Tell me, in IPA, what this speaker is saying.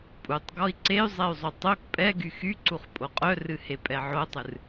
pʼ u tˤ ɡ ɔ i̯ ǀ e y̯ zˤ ɛ y̯ zˤ u tˤ o k pʼ ɛ ɡ y x y ǀ u χ pʼ o qʼ œ r ɨ h e pʼ ɛ ʕ o tˤ ɨ r

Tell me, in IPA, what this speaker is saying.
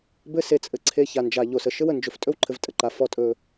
b ɘ˦ s e˨ t͡sʼ ɘ˩ ǀʰ e˨ ç a˩ n d͡ʒ a˩ ʎ o˩ s ə˩ ʃ ɘ˦ w ə˩ n d͡ʒ ɵ˩ f tʼ ɵ˥ w ǃʰ ɘ˨ v tʼ ə˩ ǃ a˩ f ɔ˨ tʼ ɵ˨

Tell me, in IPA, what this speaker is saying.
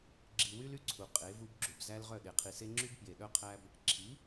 ɡ͡ǁ i˨ w y˦ l y˦ ǀʰ u˨ qʼ e˨˦ v u˦ b ɡ͡ǁ u˨ b z æ˦ l ʁ œ˦˨ ɗ e˨ qʰ i˨ s e˦ ŋ͡ǁ y˦ b p j e˨ ɗ œ˦ qʰ æ˦ b | ǁʰ i˨˦

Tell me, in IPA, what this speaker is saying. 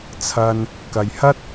t͡sʰ ɐ˧ n | k ɐ˨ j h ɐ˥ t̚

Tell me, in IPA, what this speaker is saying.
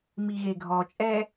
m i ɣ e ɡʱ ɔ t͡ʃʼ ɛ

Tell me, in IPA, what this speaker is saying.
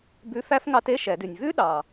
b ʉ˧˥˧ f æ˥ f ŋ ɑ˧˥ t e˧˥˧ ʃ ɛ˨˩˦ d ʉ˨ nʲ v ʉ˥ ɗ ɑ˨

